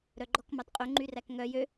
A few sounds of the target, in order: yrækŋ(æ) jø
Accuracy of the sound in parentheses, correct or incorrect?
incorrect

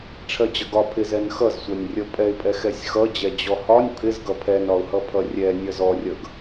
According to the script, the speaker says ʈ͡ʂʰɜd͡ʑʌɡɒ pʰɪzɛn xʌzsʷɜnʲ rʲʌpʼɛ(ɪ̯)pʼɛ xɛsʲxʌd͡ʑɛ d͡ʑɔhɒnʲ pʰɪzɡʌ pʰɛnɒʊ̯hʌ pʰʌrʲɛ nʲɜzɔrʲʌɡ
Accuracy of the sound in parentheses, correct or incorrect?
correct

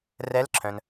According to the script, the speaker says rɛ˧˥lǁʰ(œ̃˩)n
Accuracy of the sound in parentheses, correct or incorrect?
correct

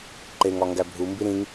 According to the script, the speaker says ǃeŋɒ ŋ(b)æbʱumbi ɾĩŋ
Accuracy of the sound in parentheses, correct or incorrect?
incorrect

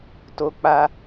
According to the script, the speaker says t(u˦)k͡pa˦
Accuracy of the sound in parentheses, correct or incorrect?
incorrect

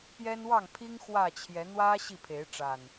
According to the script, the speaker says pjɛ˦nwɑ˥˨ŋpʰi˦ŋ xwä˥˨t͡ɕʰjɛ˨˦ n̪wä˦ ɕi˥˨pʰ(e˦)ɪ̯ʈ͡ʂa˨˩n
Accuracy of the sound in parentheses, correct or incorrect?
incorrect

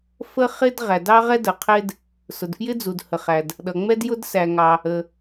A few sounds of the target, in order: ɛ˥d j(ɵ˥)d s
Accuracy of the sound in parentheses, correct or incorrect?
incorrect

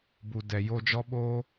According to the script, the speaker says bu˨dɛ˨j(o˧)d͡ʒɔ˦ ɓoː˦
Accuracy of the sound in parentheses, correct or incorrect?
correct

